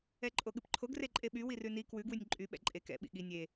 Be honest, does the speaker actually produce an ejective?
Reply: yes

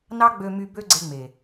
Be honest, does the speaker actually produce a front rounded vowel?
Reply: yes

